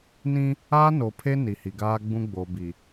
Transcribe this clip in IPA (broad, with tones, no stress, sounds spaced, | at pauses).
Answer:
n ĩ˦ | aː˦ n o˨ pʰ e˦ n i˨ h i˨ ɡ aː˦ ɡ͡b ũ˦ ɡ͡b o˨ b i˨